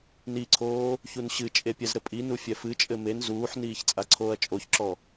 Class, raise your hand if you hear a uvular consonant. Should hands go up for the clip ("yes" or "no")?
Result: no